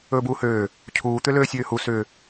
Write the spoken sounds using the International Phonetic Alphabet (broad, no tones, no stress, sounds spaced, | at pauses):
ɵː b uː h øː | cʰ uː t̪ ʏ l øː sʲ øː h u s ʏː